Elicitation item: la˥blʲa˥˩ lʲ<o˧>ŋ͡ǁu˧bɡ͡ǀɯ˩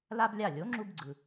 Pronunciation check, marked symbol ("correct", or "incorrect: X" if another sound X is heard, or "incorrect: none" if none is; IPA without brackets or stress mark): incorrect: o˩˥